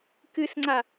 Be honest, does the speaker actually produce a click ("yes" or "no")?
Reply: yes